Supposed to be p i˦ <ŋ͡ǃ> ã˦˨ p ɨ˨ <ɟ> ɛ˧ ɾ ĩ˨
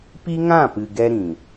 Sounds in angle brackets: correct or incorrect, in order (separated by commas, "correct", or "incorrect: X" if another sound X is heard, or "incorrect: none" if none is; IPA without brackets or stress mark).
incorrect: ŋ, incorrect: ɡ